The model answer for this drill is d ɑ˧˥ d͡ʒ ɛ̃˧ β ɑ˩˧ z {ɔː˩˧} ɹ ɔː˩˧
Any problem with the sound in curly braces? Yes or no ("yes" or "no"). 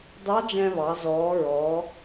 no